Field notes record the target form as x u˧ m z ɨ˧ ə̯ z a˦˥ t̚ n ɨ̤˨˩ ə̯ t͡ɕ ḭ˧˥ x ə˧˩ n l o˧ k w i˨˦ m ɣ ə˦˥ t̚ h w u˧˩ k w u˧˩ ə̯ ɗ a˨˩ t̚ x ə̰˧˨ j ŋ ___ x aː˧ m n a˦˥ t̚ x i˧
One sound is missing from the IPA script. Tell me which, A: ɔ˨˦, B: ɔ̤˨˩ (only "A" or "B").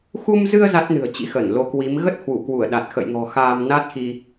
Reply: B